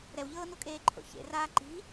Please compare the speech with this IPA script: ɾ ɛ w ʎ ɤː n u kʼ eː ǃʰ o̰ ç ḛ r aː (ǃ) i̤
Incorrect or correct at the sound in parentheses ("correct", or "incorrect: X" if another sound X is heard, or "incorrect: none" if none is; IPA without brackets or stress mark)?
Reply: correct